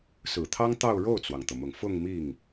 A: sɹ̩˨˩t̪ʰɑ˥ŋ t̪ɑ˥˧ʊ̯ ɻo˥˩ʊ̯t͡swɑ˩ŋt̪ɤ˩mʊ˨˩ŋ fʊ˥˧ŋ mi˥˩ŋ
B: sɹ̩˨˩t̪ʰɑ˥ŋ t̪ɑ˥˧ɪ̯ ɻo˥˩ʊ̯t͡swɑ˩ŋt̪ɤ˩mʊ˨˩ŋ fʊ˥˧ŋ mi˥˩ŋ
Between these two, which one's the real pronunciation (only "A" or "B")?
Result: A